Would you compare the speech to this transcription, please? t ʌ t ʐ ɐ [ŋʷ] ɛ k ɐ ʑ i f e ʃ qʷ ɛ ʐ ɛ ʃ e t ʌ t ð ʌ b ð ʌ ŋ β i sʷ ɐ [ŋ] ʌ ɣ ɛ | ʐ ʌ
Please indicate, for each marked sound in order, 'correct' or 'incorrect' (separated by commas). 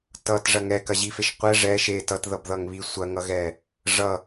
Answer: incorrect, correct